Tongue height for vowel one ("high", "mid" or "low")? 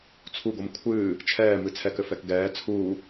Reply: high